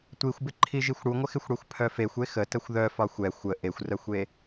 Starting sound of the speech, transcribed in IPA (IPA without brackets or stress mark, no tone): tʷ